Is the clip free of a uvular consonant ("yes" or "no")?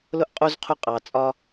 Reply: no